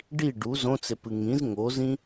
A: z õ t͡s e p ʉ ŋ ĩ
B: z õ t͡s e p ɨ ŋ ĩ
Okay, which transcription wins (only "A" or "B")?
B